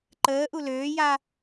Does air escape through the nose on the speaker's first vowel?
no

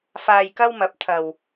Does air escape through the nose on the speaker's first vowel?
no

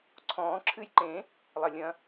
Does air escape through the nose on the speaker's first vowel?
yes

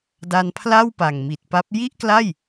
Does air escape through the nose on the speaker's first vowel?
no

